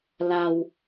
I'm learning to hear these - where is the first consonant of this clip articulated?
tongue tip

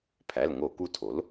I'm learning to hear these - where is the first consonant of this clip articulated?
lips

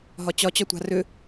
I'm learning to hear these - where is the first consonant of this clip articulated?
throat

